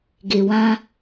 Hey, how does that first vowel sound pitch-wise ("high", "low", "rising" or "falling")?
low